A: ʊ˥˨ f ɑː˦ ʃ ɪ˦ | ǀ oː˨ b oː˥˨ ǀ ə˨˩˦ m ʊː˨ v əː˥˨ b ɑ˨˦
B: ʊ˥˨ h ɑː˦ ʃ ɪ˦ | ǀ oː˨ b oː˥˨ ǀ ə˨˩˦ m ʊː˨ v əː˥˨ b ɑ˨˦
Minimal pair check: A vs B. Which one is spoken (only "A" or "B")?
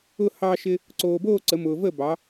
B